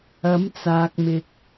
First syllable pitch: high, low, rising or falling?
rising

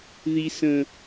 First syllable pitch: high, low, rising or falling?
low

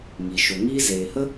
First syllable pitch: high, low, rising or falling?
low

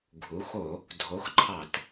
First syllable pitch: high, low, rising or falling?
rising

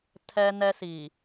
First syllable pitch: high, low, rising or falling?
high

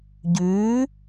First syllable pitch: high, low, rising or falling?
rising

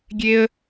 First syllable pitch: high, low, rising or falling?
high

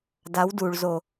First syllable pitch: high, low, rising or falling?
rising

